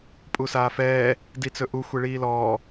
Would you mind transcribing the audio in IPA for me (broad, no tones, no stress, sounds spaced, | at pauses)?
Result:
pʼ u s aː f ɛː | d i t͡s ɵ ʔ u xʷ e ɭ iː l ɔː